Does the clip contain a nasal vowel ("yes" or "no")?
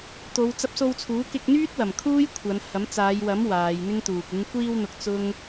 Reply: no